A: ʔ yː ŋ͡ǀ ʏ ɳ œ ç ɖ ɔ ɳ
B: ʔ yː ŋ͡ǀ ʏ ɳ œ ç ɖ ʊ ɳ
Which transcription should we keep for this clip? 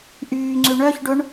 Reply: B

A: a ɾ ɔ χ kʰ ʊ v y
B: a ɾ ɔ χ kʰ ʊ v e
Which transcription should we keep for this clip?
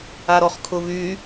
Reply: A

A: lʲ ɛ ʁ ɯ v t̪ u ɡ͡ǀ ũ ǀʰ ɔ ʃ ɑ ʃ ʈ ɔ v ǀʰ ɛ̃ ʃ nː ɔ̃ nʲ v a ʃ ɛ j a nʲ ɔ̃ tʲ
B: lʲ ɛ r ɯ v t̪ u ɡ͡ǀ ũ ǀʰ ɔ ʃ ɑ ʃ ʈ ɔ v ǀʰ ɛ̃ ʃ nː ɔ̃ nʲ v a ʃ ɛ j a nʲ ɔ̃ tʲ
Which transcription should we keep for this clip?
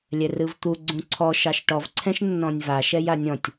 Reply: B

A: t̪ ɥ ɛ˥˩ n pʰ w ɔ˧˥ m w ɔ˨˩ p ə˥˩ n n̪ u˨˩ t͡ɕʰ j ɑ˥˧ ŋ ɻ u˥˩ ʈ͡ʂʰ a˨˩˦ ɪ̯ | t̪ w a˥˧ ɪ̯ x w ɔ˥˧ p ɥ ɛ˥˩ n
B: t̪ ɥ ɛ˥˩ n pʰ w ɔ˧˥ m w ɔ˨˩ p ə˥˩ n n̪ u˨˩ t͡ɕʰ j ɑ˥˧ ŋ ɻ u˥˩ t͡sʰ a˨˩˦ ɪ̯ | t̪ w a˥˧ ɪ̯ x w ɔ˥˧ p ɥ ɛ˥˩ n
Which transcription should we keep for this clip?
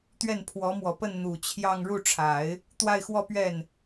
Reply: A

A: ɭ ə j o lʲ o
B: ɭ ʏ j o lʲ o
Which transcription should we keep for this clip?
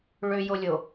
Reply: B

